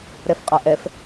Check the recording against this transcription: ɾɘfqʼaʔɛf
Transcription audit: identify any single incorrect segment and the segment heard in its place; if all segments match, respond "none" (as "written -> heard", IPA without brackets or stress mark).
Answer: ɘ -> ɛ